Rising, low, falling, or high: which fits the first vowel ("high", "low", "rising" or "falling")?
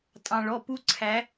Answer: low